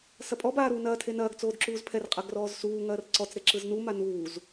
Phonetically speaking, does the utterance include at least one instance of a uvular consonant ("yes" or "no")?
yes